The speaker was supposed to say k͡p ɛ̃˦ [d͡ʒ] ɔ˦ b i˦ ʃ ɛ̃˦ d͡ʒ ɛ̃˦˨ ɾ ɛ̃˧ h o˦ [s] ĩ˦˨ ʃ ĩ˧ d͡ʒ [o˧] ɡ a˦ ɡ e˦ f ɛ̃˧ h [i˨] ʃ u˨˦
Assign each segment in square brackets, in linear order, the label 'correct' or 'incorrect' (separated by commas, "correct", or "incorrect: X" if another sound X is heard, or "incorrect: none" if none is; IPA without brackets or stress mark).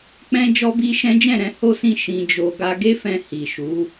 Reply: correct, correct, correct, correct